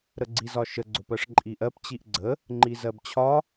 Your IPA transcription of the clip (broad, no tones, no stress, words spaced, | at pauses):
ɾəɡ͡ǀizɒʃə ɡ͡ǀʊpɜʂǃʼiʔɜp t͡ɕiʔɡ͡ǀə | ŋ͡ǃizɜbt͡ɕʰɒ